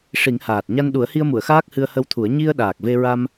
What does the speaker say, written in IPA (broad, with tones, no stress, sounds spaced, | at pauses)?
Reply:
ʂ i˨˩˦ ŋ h aː˨˩ t̚ ɲ a˧ n ɗ u˨˩˦ ə̯ h i˧ ə̯ m u˨˩˨ ə̯ x aː˦˥ k̚ h ɨ˧ ə̯ h ə˧ w t̪ʰ u˨˩˦ ə̯ ɲ i˧ ə̯ ɗ aː˨˩ k̚ v e˧ ɹ a˧ m